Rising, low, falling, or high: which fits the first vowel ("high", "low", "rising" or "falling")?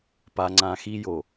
low